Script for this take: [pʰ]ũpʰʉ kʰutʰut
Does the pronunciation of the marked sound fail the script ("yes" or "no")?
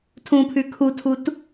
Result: yes